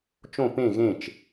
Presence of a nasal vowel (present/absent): present